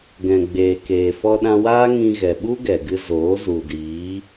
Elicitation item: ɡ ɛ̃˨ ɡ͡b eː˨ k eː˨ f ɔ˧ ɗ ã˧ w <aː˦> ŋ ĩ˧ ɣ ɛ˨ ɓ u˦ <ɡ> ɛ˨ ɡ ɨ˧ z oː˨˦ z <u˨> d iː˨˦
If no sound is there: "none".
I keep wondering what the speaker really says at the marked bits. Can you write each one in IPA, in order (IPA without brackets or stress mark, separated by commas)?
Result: aː˦, ɡ, u˨